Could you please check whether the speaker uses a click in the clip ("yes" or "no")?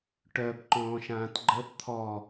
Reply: yes